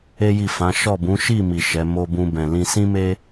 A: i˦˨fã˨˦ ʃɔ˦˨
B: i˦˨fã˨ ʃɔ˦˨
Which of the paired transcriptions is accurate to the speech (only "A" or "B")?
A